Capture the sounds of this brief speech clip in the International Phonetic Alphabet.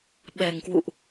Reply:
ɓ ɛ˨˩ ŋ k w ṵ˧˨ ʔ

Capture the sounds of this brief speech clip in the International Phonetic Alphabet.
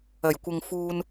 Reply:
ɐ˨˩ j kʷ ɪ˨ ŋ f uː˧ n

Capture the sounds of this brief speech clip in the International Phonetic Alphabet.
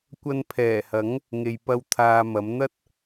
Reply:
kʷ ɐ˧ n pʰ ɛː˨˩ h ɐ˨˥ ŋ | ŋ e˧ j p ɐ˥ w t̪ʰ aː˧ m ɐ˨˥ m n̪ ɐ˥ t̚

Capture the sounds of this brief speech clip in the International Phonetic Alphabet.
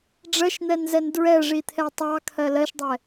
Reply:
ɖ͡ʐ ɜ ʃ n̪ ɛ n z ɛ n d ɹ ɛ ʐ i t̪ʰ ɛ tˤ ɑ kʰ ɜ l ɜ ʃ dˤ ɛ

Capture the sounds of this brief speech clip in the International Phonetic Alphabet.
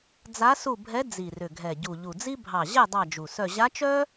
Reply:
d͡z a˧˥ s u˦˨ bʱ ɛ˧˥ d͡z i˨˩ r ʏ˨˩ ɡʱ ɛ˨˩ ɟ u˨˩ ʎ u˨˩ d͡z i˥ bʱ ɑ˨˩ ʑ ɛ˦˨ dˤ ɑ˦˨ d͡ʒ u˨˩ s œ˦˨ ʑ a˧˥ t͡ʃ œ˥

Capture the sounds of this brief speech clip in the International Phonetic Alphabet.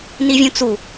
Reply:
n i vʲ ũ t͡s u

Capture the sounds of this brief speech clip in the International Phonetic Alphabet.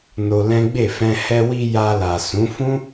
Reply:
n o˧ l ɛ̃˦ ɡ͡b e˦˨ f ɛ̃˧ h ɛ˧ w i˧ j a˧ l a˨ s ũ˨˦ f ũ˦

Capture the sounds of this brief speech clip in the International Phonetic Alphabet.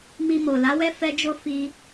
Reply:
m i˧ m o˨ l a˨˦ w ɛ˦ f ɛ˧ d͡ʒ o˧ f i˧

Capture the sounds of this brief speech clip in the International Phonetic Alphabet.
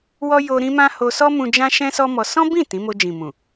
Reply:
w ɔ˦ j o˧ ɾ ĩ˦ m ã˦ h o˧ s ɔ˦ m ũ˧ d͡ʒ ã˦ ʃ ɛ̃˦ s ɔ˦ m ɔ˧ s ɔ̃˦ b ĩ˦˨ t ĩ˨˦ m o˧ d͡ʒ ĩ˨ m ũ˨

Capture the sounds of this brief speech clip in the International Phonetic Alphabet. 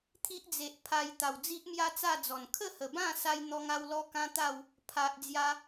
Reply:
t̪ʰ i˦ ʔ d͡z e˨ ʔ pʰ a˧ j t̪ a˨˩ w d͡z i˦ ʔ m j a˦ t͡s a˥˧ d͡z ɔ˨˩ n kʰ ə˥˧ h ə˨˩ b ã˥˧ s a˦ j n̪ ɔ˦ ŋ a˦ w l ɔ˦ k ã˦ t̪ a˥˧ w | pʰ a˨ ʔ d͡z j a˧

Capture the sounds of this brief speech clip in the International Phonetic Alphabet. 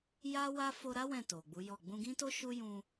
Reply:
j a˦ w a˦ f o˧ ɾ a˦ w ɛ̃˦˨ t o˨ ɡ͡b u˨˦ j ɔ˦˨ ɡ͡b ũ˧ ɡ ĩ˦ t o˦ ʃ u˦ j ũ˧

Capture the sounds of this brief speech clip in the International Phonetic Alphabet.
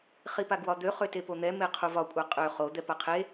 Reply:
χ i p a ɡ w ɒ d̪ ø χ ø t e p o n̪ ɛ m e qʰ u v ɒ kʷʼ a qʼ ø χ o d̪ ɛ p a qʰ e

